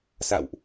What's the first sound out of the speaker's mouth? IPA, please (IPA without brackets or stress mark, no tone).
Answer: s